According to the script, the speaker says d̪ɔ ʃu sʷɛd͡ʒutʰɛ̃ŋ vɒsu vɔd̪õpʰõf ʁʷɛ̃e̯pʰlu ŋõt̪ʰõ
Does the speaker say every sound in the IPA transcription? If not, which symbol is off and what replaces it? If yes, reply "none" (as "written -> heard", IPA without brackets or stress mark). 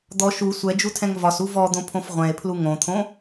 none